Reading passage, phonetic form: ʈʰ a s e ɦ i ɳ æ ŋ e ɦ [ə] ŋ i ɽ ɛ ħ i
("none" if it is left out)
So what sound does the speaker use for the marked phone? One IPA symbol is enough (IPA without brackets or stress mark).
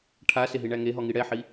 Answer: ɔ